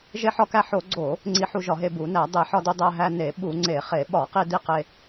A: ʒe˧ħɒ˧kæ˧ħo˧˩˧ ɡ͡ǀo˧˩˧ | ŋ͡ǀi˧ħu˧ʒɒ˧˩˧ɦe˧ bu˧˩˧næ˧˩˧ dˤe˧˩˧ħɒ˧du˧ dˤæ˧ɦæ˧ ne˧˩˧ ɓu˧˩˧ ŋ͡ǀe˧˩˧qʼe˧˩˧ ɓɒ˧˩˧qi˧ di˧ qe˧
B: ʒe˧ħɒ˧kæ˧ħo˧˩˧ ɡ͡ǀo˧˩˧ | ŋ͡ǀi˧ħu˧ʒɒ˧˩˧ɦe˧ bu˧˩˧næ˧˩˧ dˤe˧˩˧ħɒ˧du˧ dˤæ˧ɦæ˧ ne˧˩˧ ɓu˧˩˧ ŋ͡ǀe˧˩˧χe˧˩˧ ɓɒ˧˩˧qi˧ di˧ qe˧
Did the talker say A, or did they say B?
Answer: B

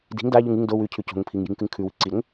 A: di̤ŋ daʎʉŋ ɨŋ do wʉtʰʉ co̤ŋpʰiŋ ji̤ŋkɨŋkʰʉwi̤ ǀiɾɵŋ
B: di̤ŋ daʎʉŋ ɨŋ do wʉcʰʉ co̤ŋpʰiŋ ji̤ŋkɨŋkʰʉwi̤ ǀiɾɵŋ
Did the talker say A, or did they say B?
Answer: B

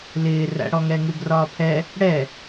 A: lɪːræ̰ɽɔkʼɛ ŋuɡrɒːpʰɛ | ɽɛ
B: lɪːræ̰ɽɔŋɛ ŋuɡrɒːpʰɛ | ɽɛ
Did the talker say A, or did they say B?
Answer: B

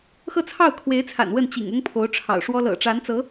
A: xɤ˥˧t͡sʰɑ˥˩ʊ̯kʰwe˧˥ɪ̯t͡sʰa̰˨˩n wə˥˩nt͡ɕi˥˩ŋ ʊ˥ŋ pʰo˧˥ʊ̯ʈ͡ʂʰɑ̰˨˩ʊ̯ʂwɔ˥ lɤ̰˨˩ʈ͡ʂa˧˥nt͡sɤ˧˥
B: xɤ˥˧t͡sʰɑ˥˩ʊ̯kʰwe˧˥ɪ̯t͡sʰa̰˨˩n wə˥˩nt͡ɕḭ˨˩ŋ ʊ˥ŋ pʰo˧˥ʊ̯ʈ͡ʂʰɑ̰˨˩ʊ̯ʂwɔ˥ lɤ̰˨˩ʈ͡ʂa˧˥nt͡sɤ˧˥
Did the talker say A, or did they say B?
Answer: B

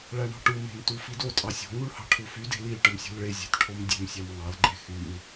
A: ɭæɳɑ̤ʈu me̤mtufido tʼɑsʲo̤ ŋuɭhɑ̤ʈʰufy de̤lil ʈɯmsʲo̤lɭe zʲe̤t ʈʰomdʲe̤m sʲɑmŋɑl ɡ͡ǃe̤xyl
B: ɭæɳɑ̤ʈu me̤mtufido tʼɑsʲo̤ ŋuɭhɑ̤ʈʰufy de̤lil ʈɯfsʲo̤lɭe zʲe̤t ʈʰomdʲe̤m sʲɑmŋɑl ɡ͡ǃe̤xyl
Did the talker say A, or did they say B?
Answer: A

